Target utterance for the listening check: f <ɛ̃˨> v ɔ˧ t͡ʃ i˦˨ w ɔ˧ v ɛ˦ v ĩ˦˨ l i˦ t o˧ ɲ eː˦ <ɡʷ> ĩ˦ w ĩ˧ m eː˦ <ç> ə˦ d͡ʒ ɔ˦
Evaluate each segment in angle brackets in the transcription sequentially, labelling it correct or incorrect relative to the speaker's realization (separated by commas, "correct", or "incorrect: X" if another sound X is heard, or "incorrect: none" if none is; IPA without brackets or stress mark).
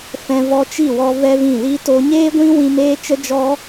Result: incorrect: ɛ̃˧, correct, incorrect: t͡ʃ